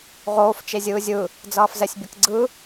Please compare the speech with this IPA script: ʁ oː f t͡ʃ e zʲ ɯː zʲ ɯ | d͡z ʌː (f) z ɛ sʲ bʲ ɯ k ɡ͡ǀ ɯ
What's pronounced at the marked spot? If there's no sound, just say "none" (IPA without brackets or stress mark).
f